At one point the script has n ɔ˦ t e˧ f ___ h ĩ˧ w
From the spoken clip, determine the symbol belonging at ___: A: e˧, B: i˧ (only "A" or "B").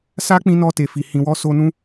B